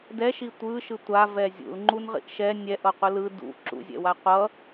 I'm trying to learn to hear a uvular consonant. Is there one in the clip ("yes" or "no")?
yes